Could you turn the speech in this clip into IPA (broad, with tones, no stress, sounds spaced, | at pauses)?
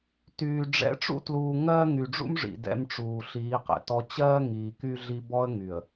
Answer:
t yː˨ ɖ͡ʐ ɛ̰˨˦ ʈ͡ʂ ṵ˦ t l uː˨ ŋ ɜ˦ ŋ y˨ ɖ͡ʐ ṵ˦ m ʐ ḭ˨ d ɛ̰˦ m ʈ͡ʂ uː˨ ɬ iː˨˦ q ɛ̰˨ t ɔ˦ t͡ɕ ɜː˦ ŋ iː˨ k y˦ ɮ i˦ b ɔ˦ ə̯ ŋ y˨ ə̯